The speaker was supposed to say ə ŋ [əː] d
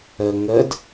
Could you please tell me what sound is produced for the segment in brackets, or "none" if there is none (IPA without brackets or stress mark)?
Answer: ə